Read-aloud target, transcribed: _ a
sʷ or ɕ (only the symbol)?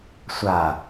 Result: sʷ